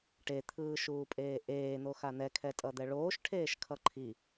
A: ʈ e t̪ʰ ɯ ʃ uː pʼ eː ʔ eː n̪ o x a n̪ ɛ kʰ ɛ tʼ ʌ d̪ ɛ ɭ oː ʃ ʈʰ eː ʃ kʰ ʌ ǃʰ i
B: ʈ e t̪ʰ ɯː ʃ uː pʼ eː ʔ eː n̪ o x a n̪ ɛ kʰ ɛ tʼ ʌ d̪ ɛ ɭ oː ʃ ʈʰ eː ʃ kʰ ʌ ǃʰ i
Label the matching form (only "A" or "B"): B